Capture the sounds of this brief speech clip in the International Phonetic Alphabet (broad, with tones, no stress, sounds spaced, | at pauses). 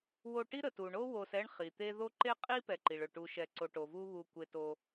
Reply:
w o˨ ʈ i˦ ɾ ə˩ t u˩ ɳ o˦ w o˨ s ɛ˦ ɳ χ i˩ t̪ e˦ ð o˥ ǃ e˦ qʼ i˦ p ɛ˨ ǃ i˩ ɭ ɵ˩ ʈ u˨ ʃ ɛ˨ ǀ o˨ ʈ o˩ v u˥ β u˨ kʷ e˦ t o˥